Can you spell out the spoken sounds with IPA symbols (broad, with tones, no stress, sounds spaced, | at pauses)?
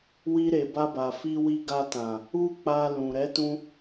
w i˧ ɾ e˨ b a˧ b a˨ f i˧ w i˧ ɡ a˧ t ã˨ | u˦ k͡p a˧ l ũ˨ ɾ ɛ˨˦ t ũ˧